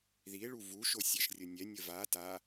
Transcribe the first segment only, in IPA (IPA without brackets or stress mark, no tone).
ð